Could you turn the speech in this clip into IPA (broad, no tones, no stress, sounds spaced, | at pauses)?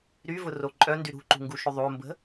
ɾ y v ʊ r o ǃʼ œ n d y ɾ ṳ ǃ ṳ ŋ ɡ u ʃ ʏ ðˤ o m b ə̤